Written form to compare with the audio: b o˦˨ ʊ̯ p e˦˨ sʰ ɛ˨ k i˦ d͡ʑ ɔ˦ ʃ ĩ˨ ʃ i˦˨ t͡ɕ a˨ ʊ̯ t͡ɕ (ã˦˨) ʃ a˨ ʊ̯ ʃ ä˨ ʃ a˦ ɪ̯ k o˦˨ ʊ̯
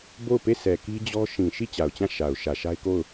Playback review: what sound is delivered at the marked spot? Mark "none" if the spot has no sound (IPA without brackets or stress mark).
ã˦˨